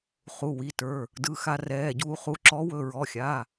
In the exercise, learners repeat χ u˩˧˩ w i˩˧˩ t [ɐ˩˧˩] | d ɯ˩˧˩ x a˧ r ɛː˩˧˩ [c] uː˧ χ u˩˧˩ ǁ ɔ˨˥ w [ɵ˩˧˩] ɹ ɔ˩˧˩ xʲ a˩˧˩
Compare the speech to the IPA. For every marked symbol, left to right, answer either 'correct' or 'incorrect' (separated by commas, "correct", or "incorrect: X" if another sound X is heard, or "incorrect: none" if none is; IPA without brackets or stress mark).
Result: incorrect: ə˞˩˧˩, incorrect: ɟ, correct